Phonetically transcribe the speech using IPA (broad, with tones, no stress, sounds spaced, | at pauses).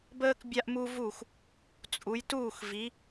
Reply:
b əː˥ k bʲ a˥ ʔ m u˥ v u˥˨ x | t͡sʼ u˨˦ j t uː˥˨ x v i˨˦